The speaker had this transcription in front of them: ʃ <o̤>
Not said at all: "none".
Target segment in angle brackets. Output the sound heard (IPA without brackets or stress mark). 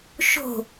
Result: o̤